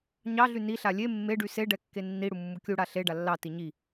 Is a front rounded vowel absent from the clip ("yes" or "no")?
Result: no